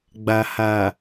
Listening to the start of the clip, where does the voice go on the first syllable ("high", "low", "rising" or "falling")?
low